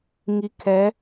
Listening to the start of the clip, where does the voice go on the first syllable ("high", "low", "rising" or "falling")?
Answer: low